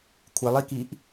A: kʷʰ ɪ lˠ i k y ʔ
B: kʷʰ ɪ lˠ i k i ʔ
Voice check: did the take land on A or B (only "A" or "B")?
B